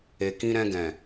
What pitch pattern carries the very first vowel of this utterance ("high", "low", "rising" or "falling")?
low